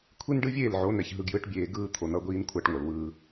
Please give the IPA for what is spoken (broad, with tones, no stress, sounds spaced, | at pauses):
kʷʰ i˦ n ɖ ɯ˦ vʲ eː˦˨ l ʕ o˨˦ n ɛ˨ ç ɦ ɯ˨ ɡ j ɯ˨˦ ʈ bʲ eː˨ ɡ ɯː˦ t̪ʰ o˨ n ʌ˦ ɡʷ iː˦ n kʷʰ a˦ ʈ ŋʷ ʌ˨ l w ɯː˦